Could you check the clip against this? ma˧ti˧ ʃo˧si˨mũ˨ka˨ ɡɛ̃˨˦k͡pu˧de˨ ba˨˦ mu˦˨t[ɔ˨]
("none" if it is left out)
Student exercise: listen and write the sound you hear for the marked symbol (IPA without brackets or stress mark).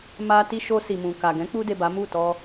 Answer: ɔ˧